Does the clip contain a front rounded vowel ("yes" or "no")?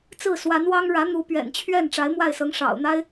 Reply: no